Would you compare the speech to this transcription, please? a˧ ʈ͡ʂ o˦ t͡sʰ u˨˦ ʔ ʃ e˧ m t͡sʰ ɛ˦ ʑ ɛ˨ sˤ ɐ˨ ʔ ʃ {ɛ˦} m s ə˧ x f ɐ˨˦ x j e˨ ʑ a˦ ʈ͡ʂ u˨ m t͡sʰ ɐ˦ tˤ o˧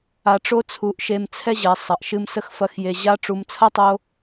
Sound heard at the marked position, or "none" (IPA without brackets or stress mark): ɨ˦